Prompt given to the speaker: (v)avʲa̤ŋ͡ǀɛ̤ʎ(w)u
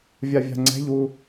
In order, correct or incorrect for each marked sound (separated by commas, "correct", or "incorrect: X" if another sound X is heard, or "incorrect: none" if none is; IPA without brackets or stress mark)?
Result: incorrect: vʲ, correct